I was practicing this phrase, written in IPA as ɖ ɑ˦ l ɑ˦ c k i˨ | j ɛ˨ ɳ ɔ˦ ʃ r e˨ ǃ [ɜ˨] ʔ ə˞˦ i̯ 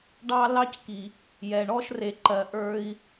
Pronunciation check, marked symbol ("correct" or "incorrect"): correct